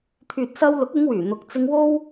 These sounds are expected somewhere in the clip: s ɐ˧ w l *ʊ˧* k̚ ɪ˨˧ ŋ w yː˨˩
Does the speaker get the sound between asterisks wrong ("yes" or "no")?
yes